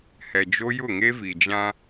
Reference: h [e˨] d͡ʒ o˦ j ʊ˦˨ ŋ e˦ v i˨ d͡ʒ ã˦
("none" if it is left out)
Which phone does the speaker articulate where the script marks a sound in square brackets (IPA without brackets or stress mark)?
ɛ˨